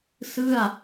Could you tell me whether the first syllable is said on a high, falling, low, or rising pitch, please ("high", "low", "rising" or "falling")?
falling